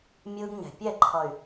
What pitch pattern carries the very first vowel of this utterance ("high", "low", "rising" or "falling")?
high